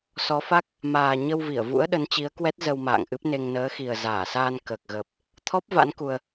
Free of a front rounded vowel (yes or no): yes